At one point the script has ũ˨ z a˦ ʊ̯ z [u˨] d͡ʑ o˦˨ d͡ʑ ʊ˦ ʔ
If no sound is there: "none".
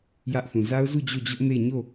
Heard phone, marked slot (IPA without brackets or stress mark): u˦˨